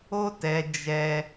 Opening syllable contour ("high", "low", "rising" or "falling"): high